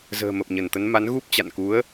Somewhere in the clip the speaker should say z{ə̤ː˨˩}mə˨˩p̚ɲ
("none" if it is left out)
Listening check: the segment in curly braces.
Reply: ə̤ː˨˩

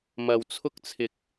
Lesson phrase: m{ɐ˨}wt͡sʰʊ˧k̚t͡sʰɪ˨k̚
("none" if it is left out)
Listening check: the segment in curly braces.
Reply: ɐ˨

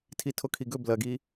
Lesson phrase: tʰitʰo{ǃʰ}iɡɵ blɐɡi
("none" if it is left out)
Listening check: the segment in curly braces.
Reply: kʰ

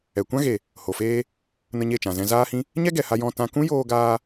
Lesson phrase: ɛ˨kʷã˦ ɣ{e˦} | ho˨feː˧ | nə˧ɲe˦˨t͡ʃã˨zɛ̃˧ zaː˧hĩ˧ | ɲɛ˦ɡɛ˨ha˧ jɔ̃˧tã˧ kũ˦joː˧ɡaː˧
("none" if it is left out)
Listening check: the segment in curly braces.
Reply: e˨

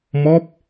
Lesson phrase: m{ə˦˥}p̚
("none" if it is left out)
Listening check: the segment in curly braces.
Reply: ɔ˦˥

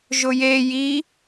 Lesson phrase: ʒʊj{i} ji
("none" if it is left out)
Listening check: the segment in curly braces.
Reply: e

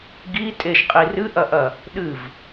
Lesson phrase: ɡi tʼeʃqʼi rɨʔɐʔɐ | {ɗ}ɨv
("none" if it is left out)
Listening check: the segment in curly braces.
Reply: ɗ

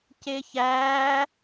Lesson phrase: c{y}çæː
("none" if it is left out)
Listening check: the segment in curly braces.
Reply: e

